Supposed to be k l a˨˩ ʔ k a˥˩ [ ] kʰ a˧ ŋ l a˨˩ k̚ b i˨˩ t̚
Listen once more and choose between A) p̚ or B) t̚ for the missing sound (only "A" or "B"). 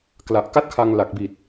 B